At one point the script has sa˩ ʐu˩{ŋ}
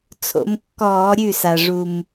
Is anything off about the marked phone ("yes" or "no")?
yes